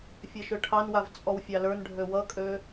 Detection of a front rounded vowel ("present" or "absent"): present